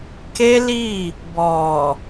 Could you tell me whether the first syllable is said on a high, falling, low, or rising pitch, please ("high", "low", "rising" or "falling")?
high